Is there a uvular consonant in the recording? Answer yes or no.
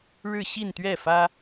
no